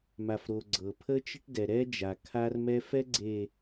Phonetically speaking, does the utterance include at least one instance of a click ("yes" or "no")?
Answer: yes